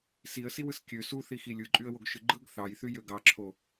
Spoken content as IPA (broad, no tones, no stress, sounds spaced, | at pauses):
s i ə̯ s i w ɯ s kʲ ø s u θ i x i lʲ ɯ ǃʼ y ə̯ w o ɡ ʃ ɯ ɡ͡ǃ ɯ ɡ θ ɑ j θ y j ø ɡ ɑ ǁʰ o